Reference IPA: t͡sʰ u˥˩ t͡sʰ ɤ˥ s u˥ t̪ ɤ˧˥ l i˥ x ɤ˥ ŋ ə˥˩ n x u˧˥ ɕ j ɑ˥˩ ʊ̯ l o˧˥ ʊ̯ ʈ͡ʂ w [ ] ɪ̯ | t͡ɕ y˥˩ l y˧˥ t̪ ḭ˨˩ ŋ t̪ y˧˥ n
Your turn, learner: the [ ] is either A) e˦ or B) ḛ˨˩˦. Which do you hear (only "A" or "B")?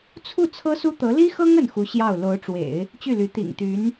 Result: B